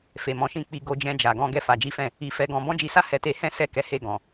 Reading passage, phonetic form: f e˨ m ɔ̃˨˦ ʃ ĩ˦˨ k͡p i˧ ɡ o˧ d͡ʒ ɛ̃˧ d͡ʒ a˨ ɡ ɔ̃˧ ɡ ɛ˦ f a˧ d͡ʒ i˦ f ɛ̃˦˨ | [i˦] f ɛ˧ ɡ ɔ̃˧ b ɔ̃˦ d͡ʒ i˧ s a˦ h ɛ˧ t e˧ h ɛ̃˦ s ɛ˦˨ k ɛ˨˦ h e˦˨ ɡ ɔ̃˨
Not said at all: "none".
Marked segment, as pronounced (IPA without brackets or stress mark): i˧